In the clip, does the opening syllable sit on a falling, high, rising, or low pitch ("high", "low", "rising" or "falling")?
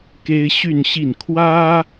high